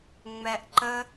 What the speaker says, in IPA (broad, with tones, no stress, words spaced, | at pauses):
ŋ͡mɛ˧ʔǃə˦